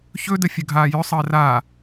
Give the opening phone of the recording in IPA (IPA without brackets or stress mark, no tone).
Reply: ç